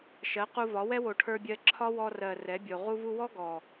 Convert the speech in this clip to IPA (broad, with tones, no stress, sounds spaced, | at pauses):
ʃ ɜ˨˦ q u˧ v ɒ˨˦ w ɛ˦ w o˨ ʈʰ ə˞˧ bʲ ɜ˧ ǁʰ ɒ˦ w ɔ˧ r ɜ˨ r ɛ˨˦ bʲ o˨ ʁ u˧ v u˧ w ɔ˦ ɡ ɔ˨